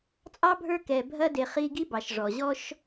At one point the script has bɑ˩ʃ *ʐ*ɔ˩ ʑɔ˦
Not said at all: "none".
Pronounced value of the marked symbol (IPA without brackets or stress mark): ʐ